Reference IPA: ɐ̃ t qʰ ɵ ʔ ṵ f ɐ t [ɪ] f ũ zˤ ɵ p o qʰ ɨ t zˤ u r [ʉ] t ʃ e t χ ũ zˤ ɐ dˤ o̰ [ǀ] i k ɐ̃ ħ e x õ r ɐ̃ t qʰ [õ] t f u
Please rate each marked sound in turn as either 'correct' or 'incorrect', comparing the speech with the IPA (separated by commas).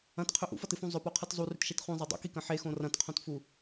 incorrect, correct, incorrect, correct